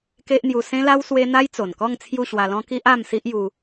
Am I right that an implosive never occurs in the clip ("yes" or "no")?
yes